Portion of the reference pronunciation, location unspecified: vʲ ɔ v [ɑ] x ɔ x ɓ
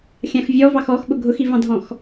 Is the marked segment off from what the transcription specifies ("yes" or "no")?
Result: no